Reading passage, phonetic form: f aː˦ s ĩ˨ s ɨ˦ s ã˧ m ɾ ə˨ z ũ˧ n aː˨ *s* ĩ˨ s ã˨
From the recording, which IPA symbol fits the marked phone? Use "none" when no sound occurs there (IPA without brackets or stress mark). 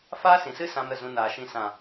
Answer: ʃ